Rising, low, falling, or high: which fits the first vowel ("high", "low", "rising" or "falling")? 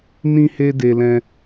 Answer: high